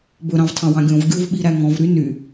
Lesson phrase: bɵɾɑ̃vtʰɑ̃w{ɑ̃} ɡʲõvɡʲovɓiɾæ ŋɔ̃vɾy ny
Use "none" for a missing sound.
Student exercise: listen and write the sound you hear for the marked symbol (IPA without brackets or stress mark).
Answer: ɑ̃